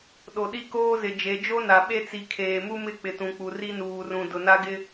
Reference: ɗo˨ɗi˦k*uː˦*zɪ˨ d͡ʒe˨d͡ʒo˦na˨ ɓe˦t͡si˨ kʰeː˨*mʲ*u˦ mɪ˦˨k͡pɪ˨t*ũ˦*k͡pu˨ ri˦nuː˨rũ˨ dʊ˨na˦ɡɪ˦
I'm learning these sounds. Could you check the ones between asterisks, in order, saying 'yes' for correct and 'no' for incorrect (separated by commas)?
no, no, no